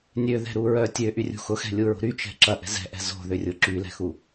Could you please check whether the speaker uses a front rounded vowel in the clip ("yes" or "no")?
yes